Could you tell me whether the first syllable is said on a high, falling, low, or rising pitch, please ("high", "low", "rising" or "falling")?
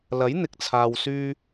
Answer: rising